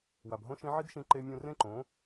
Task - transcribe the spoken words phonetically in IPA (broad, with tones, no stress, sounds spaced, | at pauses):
w a˨ b ɦ õ˦ ʃ ĩ˦ ʕ i˦ d ʃ ĩ˧ ǃ e˧ mʲ ũ˧ r ẽ˦ ǃ õ˨˦